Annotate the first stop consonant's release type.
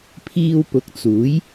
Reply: aspirated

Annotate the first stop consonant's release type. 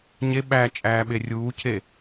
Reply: implosive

